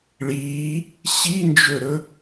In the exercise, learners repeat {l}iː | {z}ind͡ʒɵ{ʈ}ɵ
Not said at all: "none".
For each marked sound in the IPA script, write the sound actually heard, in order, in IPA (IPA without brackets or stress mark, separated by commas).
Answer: ɭ, ɕ, ɾ